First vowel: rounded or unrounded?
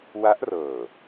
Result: unrounded